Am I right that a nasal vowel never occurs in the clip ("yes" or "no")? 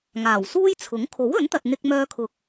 yes